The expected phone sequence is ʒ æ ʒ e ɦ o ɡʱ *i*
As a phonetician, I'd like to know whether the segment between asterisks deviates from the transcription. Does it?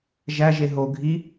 no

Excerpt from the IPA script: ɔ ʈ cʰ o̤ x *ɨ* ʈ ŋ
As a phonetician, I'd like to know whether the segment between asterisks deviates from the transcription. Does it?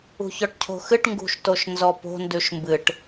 no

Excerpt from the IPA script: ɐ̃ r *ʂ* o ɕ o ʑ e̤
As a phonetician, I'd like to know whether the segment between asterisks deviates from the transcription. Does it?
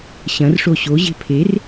no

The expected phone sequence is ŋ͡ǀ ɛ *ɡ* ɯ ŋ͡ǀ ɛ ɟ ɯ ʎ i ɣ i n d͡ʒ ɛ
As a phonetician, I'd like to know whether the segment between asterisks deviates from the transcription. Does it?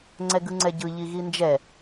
no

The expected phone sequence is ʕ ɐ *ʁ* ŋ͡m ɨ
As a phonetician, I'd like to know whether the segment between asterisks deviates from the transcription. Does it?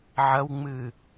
yes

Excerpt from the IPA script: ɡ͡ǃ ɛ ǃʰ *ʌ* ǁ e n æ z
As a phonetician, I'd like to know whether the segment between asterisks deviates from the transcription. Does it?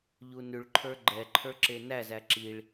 yes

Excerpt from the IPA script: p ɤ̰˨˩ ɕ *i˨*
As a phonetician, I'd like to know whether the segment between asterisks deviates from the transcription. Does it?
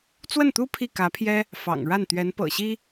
yes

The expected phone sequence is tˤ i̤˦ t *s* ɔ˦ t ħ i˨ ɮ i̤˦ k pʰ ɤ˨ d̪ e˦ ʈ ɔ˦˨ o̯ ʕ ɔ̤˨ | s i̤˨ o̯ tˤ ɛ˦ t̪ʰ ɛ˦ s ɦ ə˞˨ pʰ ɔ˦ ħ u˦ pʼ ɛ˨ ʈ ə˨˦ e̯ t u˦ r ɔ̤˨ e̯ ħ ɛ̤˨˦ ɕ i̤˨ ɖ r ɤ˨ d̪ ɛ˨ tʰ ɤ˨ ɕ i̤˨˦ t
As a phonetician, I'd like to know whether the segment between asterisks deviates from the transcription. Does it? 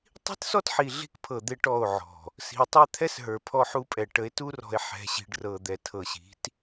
no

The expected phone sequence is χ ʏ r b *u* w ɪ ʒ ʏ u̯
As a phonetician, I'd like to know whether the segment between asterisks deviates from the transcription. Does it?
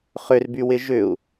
yes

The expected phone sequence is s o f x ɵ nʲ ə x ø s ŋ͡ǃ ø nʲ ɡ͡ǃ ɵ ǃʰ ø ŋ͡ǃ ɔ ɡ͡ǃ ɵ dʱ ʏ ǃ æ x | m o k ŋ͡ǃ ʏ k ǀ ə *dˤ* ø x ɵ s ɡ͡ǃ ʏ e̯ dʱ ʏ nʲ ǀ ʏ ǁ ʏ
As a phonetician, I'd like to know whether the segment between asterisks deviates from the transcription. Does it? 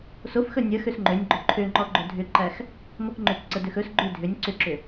yes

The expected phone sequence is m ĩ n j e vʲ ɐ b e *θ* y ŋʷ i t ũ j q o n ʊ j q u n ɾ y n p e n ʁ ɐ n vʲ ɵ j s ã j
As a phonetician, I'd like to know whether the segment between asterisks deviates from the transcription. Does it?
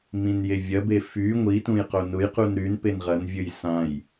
yes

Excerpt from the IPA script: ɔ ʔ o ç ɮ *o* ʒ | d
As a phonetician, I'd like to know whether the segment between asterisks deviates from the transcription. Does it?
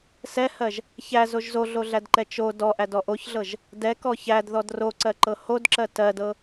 yes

